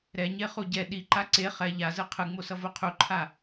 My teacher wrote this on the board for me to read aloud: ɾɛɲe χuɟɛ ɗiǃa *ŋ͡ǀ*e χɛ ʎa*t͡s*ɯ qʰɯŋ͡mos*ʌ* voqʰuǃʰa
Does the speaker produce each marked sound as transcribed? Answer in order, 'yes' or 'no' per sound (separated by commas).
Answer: no, no, yes